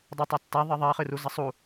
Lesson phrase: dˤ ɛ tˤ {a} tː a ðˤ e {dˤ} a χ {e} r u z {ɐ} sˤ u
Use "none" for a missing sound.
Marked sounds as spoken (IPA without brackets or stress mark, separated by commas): a, ðˤ, ɨ, ɐ